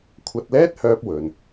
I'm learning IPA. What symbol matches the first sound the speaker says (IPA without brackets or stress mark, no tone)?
kʷʰ